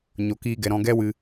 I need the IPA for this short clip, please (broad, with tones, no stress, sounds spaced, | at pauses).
ɲ o˨ k iː˧ ɡ ɛ˨ ɾ ɔ̃˧ ɡ ɛ˦ w ɨ˧